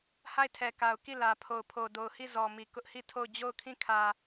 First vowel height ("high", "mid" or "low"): low